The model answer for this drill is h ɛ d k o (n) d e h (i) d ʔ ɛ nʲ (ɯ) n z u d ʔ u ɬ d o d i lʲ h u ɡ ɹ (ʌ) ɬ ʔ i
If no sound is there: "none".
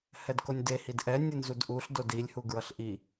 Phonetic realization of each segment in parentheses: nʲ, i, ɯ, ʌ

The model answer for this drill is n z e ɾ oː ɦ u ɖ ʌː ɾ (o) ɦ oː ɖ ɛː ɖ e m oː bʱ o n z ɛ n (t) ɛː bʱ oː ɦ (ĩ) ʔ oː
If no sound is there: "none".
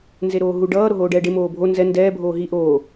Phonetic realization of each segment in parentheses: o, d, i

